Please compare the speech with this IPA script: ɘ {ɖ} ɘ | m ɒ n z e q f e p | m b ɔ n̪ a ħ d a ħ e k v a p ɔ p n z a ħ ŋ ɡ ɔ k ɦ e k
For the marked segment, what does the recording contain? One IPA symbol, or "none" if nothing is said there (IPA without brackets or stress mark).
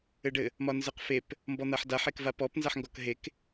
ɖ